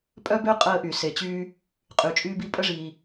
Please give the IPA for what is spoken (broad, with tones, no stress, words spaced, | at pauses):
pʼœ˥bø˥ qʼəː˥ʔy˩se˩t͡ɕyː˥ | qʼy˩t͡ʃʼyː˥bi˥ pʼə˥ʐiː˩